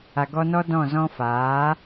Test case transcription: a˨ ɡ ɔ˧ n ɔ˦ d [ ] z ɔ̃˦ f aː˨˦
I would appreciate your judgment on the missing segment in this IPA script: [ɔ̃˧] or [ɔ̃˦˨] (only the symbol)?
ɔ̃˦˨